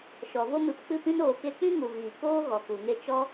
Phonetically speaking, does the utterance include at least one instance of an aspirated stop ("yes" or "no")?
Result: no